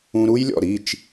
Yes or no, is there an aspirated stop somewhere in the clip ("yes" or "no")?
no